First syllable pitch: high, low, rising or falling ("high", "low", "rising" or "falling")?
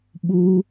high